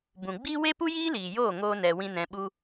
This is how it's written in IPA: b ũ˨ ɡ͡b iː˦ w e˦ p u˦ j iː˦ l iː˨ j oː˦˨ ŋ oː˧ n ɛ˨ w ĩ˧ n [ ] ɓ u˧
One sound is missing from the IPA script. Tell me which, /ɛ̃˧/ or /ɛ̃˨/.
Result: ɛ̃˨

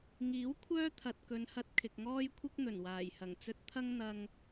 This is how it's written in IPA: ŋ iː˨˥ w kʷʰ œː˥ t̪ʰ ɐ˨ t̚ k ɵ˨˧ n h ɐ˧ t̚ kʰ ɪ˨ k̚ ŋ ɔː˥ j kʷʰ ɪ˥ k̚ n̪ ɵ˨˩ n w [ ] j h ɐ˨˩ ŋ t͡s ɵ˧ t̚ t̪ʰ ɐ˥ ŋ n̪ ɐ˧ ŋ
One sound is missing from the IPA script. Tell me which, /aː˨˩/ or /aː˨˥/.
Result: aː˨˩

